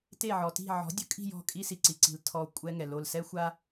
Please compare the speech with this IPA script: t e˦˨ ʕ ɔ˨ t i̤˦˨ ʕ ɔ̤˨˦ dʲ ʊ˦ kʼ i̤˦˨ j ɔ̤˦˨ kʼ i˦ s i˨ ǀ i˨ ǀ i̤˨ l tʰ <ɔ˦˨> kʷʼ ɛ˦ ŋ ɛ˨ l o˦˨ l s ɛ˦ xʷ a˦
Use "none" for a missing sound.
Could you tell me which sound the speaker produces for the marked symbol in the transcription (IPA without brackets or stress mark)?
ɔ˨